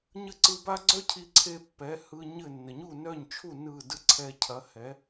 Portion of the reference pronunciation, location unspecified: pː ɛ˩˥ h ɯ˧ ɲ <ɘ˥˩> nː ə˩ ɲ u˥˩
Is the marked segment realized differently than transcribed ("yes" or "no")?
no